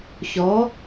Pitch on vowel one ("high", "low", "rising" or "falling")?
rising